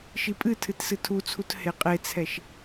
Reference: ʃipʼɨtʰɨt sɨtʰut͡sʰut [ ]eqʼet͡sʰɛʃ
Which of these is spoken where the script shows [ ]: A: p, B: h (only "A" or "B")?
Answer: B